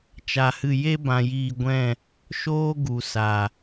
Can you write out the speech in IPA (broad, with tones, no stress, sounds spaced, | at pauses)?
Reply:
t͡ʃ a˧ h ɨ˦˨ j e˦ b ã˧ j iː˧ ɡʷ ɛ̃˦˨ | ʃ oː˦ ɡ u˨ s a˨